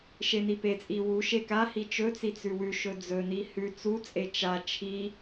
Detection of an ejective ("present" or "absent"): present